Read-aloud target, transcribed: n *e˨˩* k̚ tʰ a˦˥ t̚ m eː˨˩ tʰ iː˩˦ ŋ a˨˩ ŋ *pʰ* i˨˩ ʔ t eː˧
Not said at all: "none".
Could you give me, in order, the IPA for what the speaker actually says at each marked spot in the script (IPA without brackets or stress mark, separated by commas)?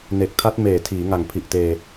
e˨˩, pʰ